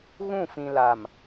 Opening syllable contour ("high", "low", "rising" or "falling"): falling